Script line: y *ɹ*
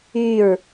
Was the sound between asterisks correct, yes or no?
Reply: yes